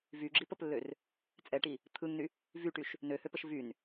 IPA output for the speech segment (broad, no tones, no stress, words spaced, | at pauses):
vyɡ͡ǁipəplːør | t͡sʼɛʈi | t̪ʰɯŋny | vyʈyʃ | nøhøpəʃ vyn